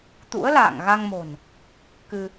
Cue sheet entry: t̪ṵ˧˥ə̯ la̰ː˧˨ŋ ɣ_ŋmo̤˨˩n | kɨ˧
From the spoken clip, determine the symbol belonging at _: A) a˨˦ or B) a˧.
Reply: B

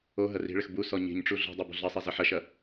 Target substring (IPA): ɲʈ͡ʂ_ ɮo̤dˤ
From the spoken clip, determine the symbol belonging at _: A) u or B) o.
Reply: A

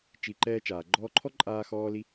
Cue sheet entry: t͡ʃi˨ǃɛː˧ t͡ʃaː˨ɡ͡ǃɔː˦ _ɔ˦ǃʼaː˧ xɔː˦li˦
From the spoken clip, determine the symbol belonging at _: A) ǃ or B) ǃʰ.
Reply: B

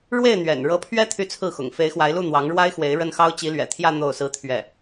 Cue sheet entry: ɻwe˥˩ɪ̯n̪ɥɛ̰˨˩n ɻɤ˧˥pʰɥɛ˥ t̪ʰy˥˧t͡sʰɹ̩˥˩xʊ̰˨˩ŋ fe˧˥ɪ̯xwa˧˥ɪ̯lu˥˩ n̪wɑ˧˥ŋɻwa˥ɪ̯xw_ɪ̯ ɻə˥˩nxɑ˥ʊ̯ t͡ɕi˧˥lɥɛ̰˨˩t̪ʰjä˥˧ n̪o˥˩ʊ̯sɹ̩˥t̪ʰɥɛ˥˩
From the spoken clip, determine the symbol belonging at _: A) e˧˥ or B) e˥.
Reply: A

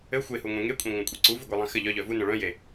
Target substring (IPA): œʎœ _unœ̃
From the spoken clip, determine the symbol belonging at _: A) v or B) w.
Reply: A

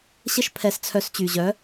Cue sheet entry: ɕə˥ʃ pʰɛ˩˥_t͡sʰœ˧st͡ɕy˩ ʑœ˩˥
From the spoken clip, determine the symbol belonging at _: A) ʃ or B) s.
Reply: B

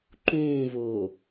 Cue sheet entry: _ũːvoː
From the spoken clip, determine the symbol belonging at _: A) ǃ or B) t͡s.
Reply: A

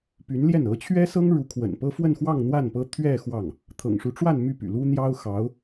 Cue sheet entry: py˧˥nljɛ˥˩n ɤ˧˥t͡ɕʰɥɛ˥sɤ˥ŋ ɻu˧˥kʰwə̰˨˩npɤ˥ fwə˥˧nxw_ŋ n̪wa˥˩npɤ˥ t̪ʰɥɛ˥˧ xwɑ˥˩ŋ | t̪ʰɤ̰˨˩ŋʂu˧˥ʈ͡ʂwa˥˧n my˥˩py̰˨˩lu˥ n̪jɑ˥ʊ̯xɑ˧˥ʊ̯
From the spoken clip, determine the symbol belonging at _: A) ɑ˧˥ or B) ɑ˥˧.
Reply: B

